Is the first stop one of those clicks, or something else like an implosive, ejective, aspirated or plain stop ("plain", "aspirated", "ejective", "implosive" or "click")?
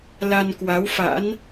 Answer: plain